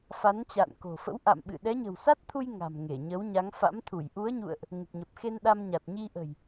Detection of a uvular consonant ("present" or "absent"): absent